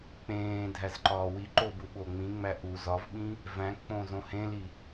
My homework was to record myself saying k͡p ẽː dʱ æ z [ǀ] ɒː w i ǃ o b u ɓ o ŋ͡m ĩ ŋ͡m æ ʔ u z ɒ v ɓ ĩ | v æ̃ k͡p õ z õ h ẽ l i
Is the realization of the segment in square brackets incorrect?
yes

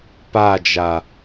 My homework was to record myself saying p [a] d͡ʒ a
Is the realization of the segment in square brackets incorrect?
no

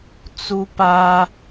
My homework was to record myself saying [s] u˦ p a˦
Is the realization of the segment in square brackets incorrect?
yes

